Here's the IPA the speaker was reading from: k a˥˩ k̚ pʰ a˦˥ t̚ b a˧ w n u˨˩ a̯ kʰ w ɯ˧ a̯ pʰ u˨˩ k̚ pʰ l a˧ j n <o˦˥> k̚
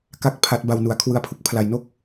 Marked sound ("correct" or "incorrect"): incorrect